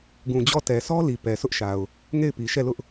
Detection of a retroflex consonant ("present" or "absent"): absent